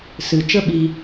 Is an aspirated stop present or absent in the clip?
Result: absent